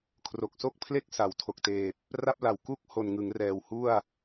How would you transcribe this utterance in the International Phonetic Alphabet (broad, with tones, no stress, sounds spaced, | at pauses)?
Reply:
kʰ r o˨˩ k̚ s o˥˩ k̚ pʰ l e˥˩ k̚ s a˩˦ w tʰ o˨˩ k̚ t eː˨˩ p̚ | r a˥˩ p̚ l a˨˩ w k u˦˥ k̚ h o˨˩ n ŋ ɯ˩˦ ŋ r ɛː˨˩ w h u˥˩ a̯